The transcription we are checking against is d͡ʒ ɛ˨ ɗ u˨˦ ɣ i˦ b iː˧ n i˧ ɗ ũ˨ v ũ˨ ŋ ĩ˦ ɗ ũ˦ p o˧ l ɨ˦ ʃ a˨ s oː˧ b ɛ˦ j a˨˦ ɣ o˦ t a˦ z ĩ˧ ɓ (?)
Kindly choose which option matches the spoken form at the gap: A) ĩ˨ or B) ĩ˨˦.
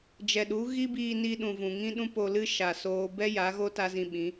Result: B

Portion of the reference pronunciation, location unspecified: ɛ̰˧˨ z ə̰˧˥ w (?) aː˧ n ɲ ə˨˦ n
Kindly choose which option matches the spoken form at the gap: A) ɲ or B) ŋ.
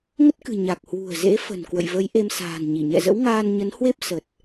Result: B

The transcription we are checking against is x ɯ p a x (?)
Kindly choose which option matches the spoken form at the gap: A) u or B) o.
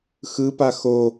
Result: B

